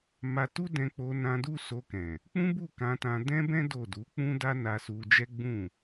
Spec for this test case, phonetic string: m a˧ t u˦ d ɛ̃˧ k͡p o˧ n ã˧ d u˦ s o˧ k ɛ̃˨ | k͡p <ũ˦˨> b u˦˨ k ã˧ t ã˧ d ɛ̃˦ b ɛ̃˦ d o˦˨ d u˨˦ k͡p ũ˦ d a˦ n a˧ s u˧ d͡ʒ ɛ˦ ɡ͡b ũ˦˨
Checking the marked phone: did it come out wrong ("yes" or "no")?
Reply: yes